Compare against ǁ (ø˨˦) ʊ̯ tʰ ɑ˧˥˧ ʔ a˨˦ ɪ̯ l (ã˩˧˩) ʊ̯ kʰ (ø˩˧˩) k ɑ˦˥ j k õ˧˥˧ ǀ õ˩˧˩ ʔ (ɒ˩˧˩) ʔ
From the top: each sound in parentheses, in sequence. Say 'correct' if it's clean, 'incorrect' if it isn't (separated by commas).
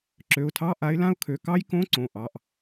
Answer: incorrect, incorrect, correct, incorrect